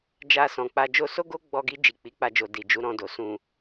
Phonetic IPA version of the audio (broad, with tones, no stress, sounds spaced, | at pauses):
d͡ʒ a˧ s ɔ̃˨ k͡p a˧ d͡ʒ o˧ s o˦ ɡ o˦ ɡ͡b ɔ˧ ɡ i˧ d͡ʒ i˨ k͡p i˨˦ k͡p a˧ d͡ʒ o˨ d i˨ d͡ʒ u˨˦ ɾ ɔ̃˧ d o˨ s ũ˨